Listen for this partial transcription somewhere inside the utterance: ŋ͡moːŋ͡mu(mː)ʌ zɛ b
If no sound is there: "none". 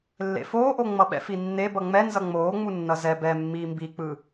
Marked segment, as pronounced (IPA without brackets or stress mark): nː